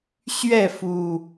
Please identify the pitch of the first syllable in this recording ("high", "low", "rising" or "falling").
falling